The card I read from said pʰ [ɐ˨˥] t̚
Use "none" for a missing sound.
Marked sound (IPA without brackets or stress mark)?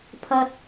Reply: ɐ˧